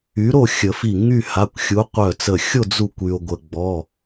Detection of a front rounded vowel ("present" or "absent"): present